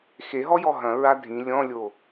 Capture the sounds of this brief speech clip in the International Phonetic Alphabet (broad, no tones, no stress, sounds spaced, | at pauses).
x e ɦ ɔ j ɔ ɦ ɐ̃ ɹ a dʱ ĩ lʲ ɔ̃ lʲ o